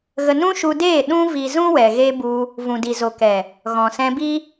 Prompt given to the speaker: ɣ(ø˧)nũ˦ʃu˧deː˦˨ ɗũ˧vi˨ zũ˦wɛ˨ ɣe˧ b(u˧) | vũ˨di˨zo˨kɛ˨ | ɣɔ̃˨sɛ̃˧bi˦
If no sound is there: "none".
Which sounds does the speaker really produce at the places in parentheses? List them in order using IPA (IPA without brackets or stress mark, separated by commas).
ə˧, u˧